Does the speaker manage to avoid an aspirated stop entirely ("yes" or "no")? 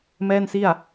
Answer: yes